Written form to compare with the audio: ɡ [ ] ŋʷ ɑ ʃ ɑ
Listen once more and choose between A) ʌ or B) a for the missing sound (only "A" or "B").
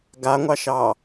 B